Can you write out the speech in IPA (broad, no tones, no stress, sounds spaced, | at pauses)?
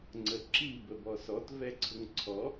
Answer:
ŋ͡ǀ ə ǁ i b ə b ɔ s ɔ t v ɛ ǀʰ ʊ ŋ ǀʰ ɔ